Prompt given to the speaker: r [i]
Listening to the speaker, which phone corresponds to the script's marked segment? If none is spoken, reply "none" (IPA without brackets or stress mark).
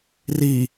i